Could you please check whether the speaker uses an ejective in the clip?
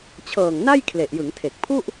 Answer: no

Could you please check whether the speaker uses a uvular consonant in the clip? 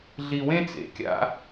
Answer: no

